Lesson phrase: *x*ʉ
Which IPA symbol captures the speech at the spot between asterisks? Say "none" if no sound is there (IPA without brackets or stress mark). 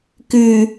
k